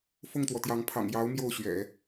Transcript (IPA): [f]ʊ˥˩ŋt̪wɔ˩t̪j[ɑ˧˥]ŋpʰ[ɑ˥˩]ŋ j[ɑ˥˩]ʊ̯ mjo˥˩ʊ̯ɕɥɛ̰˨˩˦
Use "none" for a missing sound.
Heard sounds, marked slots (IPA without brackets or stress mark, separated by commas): f, ɑ˧˥, ɑ̰˨˩, ɑ˧˥